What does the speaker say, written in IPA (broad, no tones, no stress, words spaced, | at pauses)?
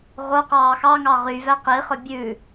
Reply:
ʁo qɑːxɑŋɑ ʁyvæ qiχœ bʲʉ